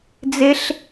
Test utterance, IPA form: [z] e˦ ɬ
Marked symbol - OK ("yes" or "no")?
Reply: no